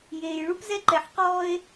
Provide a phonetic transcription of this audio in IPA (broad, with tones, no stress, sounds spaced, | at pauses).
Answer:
j eː˨ j ɭ u˦ p z ɛ˦ ǃ ɛ˨ ħ q ɔː˦ e̯